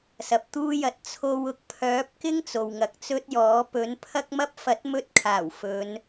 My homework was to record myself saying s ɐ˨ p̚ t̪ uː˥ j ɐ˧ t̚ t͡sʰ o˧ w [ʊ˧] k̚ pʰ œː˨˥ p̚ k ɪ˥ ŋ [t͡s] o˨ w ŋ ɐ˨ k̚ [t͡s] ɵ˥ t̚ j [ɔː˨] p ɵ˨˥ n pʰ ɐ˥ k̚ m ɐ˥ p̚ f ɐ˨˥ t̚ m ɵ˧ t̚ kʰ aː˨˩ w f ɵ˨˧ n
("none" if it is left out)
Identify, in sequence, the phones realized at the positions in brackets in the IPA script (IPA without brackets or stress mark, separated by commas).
ʊ˧, t͡s, t͡s, ɔː˨˥